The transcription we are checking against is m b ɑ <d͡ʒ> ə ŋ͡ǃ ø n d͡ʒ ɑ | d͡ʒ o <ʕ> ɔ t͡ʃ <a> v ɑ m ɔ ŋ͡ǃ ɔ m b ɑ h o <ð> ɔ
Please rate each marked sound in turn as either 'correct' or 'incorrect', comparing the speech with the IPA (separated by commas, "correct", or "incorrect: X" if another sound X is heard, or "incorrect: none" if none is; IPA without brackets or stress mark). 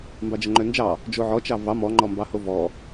correct, correct, incorrect: ɑ, incorrect: v